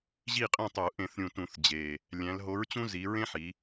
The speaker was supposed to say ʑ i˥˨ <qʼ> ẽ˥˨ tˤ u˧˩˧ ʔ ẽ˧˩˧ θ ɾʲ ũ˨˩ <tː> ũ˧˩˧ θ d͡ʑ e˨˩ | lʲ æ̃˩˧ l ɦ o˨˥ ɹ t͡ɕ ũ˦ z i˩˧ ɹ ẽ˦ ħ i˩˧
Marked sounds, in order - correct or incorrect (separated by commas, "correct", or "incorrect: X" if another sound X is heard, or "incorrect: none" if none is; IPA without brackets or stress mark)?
correct, incorrect: t